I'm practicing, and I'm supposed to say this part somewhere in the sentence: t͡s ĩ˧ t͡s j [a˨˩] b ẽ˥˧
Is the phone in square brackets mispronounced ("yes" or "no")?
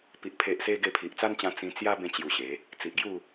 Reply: yes